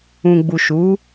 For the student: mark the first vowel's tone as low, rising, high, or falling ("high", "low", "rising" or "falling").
low